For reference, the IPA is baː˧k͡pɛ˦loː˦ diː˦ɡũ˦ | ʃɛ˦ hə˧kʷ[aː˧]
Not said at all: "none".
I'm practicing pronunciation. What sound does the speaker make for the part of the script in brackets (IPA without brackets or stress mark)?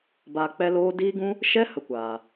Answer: aː˨